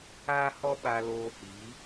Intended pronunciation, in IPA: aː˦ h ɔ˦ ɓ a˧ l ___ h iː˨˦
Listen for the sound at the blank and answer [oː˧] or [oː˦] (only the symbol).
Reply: oː˧